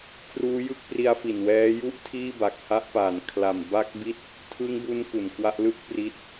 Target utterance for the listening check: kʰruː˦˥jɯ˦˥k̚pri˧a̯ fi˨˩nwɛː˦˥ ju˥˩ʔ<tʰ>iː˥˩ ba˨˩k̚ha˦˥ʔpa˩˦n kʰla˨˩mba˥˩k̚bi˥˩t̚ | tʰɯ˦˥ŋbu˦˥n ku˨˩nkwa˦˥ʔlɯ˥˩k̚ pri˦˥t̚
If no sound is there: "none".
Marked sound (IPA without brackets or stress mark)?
tʰ